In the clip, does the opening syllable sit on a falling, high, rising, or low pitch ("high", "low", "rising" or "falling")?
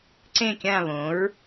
falling